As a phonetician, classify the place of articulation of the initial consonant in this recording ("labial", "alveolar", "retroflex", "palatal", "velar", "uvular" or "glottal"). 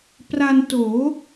labial